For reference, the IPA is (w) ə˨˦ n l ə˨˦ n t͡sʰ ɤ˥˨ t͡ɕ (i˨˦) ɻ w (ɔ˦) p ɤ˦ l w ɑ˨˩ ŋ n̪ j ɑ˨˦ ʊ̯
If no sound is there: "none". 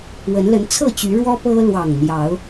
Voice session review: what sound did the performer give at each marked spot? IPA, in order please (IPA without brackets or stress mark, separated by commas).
w, y˨˦, ɔ˦